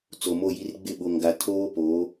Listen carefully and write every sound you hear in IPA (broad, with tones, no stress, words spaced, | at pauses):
t͡so˨mo˦˨ji˦r ɡ͡bɪ˦˨ɓo˨ŋɡa˨ tʰoː˦po˨˦